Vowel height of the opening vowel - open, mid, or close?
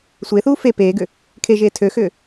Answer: mid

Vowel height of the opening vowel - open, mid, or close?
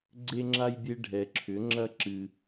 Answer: mid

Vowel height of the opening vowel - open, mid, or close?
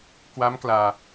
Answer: open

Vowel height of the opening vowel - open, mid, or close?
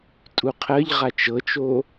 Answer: close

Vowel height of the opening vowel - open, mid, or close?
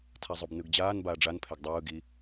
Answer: open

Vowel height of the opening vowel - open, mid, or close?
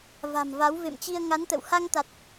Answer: open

